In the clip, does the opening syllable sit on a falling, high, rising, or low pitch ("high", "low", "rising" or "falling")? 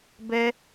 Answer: high